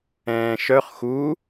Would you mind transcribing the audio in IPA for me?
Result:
ɛ̃ː ʃ œ χ x u

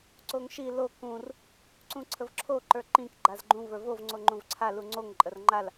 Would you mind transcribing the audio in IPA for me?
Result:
ǀ o ŋ ʃ i l o k ũ r | ǀ ũ ǀʰ ə v ǁʰ o ǃ ə˞ ǃ ĩ k ɡ͡ǃ a z ɡ͡ǃ ũ v ə˞ v o v ŋ͡ǀ o ŋ͡ǃ ũ v ǀʰ a l u ŋ͡ǀ o ŋ ǃʼ ə r ŋ͡ǃ a l

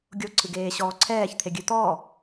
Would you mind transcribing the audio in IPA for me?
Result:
ɡʲ o ǀʰ ɨ ɡ eː ɕ ɔː ǀʰ ɛː ç t̪ʰ e ɡʲ ɨ t̪ ɔ

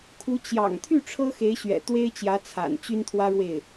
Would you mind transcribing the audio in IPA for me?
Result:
kʰ u˧˥ t͡ɕ j ɑ̰˨˩ ŋ t̪ʰ y˥˩ ʈ͡ʂʰ ɤ˥ x e˧˥ ɪ̯ ɕ ɥ ɛ̰˨˩ t̪ w e˥ ɪ̯ t͡ɕ j ä˧˥ t͡sʰ a̰˨˩ n t͡ɕ y˥ n t̪ʰ w ä˥ ɻ w e˥˩ ɪ̯

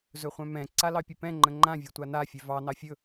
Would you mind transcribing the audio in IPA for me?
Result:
z ɵ χʷ œ̃ m ɛ̃ ǀ a l ɑ pʲ ə p ɛ̃ ŋ͡ǃ ə̃ ŋ͡ǃ ã vʲ e tʷ a n a fʲ œ v ɑ n ɑ fʲ ɵ

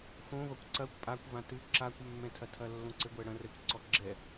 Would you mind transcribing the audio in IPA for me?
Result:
x õ v ɐ kʷ ǀ ɐ kʷ pʼ a kʷ v ã t ɨ ǁ a kʷ mː ɛ̃ tʰ ɐ tʰ ɐ lː õ ǀ ɘ ɡʷ ɛ ɽ ɐ̃ r ɛ kʷ ǀ ɔ ɡ͡ǁ ɛ

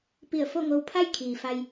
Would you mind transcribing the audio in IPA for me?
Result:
p i˧˩ ə̯ f o˥˨ ŋ o˧ w pʰ a˥˨ j kʰ iː˩ f a˧ j

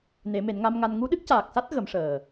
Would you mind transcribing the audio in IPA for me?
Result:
n e˨˩˦ m e˨˩˦ n ŋ a˧ m ŋ a˧ n ŋ u˧˥ ɗ ɨ˦˥ k̚ c aː˨˩ k̚ s a˦˥ t̚ ɣ ə˨˩˦ m ʂ əː˨˩

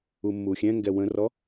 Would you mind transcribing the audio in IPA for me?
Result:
u mː u xʲ ɛ̃ ŋ ɡ ɛ w ə̃ r ɔ

